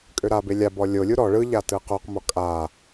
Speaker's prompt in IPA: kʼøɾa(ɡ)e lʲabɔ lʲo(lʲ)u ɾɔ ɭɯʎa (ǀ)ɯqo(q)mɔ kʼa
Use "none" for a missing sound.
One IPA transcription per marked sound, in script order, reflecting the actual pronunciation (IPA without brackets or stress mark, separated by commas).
b, lʲ, t, q